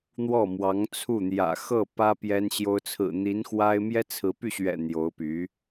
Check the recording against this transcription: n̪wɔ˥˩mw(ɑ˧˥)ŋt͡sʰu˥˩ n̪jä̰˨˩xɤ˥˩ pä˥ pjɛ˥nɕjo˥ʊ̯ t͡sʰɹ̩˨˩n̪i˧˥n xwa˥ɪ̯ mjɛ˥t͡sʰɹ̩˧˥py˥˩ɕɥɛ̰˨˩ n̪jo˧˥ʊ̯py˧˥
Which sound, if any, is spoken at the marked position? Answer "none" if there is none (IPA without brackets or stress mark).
ɑ˧˥